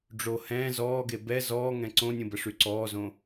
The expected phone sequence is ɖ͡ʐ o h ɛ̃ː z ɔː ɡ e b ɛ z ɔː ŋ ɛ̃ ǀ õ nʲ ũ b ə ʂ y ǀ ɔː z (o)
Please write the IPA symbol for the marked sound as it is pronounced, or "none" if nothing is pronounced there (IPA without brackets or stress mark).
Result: õ